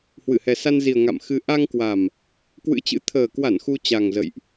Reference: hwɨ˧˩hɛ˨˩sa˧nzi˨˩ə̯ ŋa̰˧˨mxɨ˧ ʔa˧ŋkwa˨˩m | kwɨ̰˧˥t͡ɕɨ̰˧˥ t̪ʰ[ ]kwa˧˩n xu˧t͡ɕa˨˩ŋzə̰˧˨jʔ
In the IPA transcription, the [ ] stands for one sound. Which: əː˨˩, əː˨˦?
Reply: əː˨˩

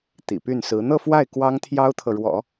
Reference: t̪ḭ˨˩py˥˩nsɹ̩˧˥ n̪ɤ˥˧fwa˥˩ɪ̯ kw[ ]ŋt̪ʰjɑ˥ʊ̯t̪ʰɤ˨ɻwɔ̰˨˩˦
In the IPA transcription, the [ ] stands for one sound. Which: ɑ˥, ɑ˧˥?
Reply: ɑ˥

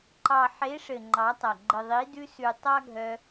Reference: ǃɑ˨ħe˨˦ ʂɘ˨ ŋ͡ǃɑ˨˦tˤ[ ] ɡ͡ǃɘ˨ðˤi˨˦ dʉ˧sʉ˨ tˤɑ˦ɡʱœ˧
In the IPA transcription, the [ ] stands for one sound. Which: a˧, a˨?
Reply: a˨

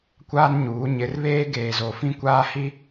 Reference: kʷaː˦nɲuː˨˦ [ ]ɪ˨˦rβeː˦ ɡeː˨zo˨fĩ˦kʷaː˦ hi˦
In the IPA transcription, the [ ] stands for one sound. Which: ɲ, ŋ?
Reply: ɲ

